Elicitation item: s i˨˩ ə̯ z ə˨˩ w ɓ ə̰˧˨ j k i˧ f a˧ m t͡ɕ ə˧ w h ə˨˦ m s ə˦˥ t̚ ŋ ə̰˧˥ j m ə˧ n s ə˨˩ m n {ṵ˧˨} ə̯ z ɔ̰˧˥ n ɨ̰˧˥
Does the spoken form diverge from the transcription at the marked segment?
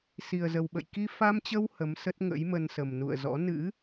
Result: no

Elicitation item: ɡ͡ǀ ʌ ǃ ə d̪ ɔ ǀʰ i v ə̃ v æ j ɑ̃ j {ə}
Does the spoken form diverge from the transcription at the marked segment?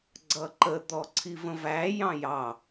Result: yes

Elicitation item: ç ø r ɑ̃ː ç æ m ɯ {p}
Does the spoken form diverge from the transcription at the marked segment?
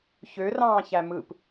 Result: no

